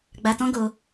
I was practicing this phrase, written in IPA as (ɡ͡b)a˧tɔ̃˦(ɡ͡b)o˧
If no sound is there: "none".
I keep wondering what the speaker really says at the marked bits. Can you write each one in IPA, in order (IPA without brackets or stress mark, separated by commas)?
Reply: ɡ͡b, ɡ